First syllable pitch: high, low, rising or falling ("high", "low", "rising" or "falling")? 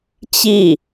falling